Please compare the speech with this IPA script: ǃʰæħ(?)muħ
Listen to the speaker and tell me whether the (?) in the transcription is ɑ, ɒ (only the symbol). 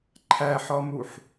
ɒ